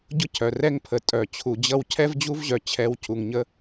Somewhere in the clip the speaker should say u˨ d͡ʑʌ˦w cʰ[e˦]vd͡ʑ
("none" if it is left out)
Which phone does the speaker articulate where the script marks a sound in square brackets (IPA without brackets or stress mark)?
ɛ˦